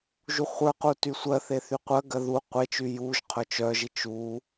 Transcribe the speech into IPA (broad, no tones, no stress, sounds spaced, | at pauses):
ʒ u χʷ ə˞ q u t y sʷ ɜ θ e θ y qʷ ɜ ɡ ɜ ð u qʷ e t͡ʃ y j u ʒ qʰ œ t͡ʃ œ ʒ i t͡ʃ u